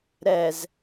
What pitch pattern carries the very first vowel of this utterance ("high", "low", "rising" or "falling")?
low